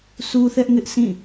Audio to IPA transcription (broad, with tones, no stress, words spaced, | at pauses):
sʰu˦θɛ˦ʔŋɪ˦ʔ sĩ˦˨